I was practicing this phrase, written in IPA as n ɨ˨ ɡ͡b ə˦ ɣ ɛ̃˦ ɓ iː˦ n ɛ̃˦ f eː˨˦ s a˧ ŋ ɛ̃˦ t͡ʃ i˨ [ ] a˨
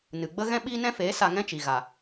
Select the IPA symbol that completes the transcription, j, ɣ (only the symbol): ɣ